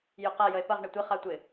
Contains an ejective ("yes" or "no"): no